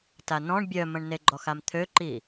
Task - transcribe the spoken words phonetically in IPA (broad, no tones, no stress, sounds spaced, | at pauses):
t a n ɔ̃ ɳ bʲ œ m ə̃ ɳ n e ɡ͡ǃ ɔ x a m t̪ʰ ø ǃ i